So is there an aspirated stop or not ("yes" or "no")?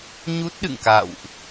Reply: no